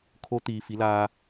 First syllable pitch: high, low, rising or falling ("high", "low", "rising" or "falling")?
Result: rising